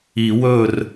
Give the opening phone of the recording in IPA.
i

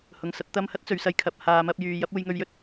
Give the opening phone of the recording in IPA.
h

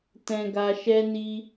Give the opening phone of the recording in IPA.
t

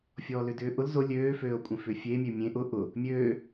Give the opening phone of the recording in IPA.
fʲ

